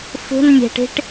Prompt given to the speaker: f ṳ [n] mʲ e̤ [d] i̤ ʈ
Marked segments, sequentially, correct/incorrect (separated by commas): correct, incorrect